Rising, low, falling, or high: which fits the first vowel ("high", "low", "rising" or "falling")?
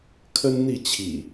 high